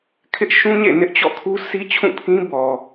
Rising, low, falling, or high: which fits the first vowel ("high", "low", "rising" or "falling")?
high